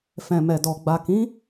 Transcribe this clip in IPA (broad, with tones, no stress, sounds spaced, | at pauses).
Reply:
f ɛ̃˨ m ɛ˨ d ɔ˨ ɡ͡b a˨ k ĩ˨˦